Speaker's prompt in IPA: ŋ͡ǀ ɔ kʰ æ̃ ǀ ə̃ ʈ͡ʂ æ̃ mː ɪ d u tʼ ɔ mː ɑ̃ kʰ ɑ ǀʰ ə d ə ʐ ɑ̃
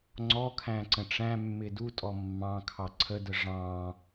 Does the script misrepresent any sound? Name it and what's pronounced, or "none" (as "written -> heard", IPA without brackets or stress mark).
none